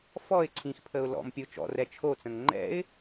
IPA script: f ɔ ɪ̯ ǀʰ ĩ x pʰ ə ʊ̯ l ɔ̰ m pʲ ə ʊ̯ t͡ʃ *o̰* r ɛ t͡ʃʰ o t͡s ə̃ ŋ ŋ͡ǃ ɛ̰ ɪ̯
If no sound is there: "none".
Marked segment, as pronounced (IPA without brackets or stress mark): ɔ̰